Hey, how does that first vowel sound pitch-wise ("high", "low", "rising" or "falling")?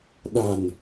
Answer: low